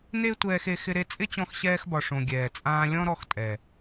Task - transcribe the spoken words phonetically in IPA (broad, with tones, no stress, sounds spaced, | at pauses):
n e˦ tʷ ɛː˧ x e˧ x ɪ˧ ɾ e˧ t͡sʼ ɪ˦ t͡ɕ ɔ̃˧ x ɕ ɛː˧ x b ɒ˨ ʂ õ˨ ɡʲ ɛː˨ t͡sʼ ãː˧ lʲ ɔ̃˦ ɾ ɔ˧ x tʼ ɛ˨